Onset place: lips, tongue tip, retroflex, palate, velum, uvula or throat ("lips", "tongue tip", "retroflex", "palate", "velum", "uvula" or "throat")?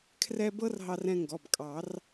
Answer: velum